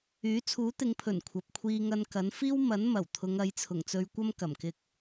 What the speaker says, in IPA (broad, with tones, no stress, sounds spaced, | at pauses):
yː˨˥ t͡sʰ uː˨˥ t̪ ɪ˨˧ ŋ pʰ ɵ˨˩ n kʷʰ ɐ˨ p̚ kʷʰ iː˧ ŋ ɐ˧ n k ɐ˨˥ n f iː˥ w m ɐ˨˥ n m ɐ˨˩ w t̪ʰ ʊ˨˧ ŋ ɐ˨˥ j t͡sʰ ʊ˨˩ ŋ t͡s ɵ˧ ɥ kʷ ɐ˥ m k ɐ˨˩ m k ɪ˧ k̚